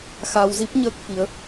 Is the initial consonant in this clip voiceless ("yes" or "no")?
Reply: yes